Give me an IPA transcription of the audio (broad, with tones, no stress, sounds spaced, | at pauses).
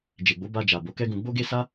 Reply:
d͡ʒ e˨ ɡ͡b o˨˦ b a˧ d͡ʒ a˨ b o˨˦ k ɛ˦ ɡ ũ˧ ɡ͡b o˦ ɡ e˦ s a˦